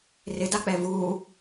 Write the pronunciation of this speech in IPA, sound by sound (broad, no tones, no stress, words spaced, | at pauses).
rɪdak͡pɛ vu